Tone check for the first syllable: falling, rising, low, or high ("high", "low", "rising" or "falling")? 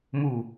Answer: low